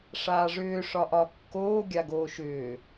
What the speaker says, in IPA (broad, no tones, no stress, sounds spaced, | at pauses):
ʂ aː ʐ ʏː ʂ ɒ ʔ ɒ kː oː ɡʲ a ɡ oː ʃ ʏː